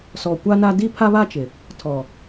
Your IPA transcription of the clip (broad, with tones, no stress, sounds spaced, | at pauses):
s ɔ˨ kʷ a˦ n a˦ d i˦ pʰ a˦ β a˦ t͡ʃ ɪ˨ | tʰ ɔ˨